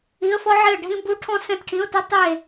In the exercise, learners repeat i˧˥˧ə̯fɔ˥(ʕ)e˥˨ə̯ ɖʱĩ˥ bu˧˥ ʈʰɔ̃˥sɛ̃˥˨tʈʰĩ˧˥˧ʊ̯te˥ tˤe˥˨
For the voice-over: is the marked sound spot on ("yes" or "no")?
yes